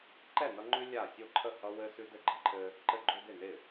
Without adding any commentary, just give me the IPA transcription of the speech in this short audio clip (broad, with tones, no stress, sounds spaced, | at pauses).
ǃ ɛ˥˩ n ʌ˦ ŋ͡ǃ ʉ˦ lʲ a˥˩ sʲ o˥˩ ǃʰ ə˥˩ h ʌ˦ w ɘ˦ s ʉ˦ d ɘ˥˩ ɡ͡ǃ ɪ˦ ǃʰ ɘ˦ | ǃ ɘ˦ ɡ͡ǃ o˦ d ɪ˥˩ n ɪ˥˩